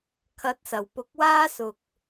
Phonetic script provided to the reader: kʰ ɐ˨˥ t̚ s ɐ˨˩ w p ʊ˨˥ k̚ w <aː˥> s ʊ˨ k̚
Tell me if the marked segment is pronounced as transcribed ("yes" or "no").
yes